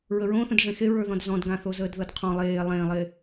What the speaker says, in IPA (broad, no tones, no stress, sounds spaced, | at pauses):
ɹ ə ɹ õ θ ə̃ d ʐ ẽ x e ɹ ə˞ ð ɔ̃ d z ɔ̃ d ɡ ã θ o z əː d ð ɤ d qʰ ɔ̃ lˠ eː lˠ ẽː lˠ eː